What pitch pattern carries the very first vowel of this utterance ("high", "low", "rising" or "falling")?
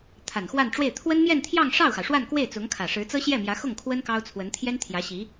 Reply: low